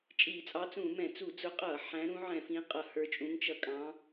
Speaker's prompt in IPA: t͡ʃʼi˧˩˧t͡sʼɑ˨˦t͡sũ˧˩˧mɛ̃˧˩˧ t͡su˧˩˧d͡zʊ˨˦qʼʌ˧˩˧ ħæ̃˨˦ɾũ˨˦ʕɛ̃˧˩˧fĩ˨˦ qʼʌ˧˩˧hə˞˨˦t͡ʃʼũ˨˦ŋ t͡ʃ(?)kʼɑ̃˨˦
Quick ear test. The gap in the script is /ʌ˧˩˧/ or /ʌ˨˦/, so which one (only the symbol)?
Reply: ʌ˧˩˧